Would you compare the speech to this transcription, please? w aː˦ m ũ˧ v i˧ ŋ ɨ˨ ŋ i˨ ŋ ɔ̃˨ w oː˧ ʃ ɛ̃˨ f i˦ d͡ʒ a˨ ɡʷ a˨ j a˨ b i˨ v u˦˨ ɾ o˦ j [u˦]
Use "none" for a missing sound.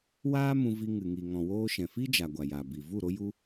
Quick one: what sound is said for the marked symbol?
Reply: u˦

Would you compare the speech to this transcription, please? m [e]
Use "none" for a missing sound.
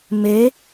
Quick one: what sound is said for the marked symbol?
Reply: e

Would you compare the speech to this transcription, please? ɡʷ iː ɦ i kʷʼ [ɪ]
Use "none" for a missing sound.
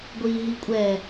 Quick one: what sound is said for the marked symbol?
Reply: ɛ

